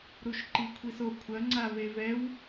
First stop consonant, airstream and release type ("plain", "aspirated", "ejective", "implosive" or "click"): click